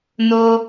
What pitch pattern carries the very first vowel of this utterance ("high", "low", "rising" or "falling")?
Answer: high